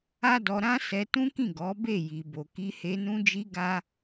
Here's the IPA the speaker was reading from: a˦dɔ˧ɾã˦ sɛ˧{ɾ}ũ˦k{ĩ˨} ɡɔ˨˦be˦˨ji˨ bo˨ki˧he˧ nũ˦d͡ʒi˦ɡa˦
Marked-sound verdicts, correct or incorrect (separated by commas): incorrect, incorrect